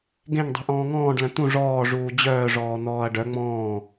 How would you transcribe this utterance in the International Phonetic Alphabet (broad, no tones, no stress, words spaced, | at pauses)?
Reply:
ɡẽŋdˤi̤ ʔɔ̃ːŋɔ̃ːɖlœ̃ t̪ũ ʐɔːʐuː d͡ʑœːʐɔː n̪ɔːɐ̯ɖœ ŋ͡mɔ̃ː